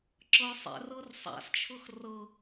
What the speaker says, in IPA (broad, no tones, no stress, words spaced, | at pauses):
ǁɤ sˤɛ̰rɤr sˤa̰st͡ʃʰɤx rɤ